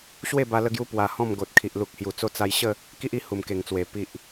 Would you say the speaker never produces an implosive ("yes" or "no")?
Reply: yes